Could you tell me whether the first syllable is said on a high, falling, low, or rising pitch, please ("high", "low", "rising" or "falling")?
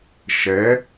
rising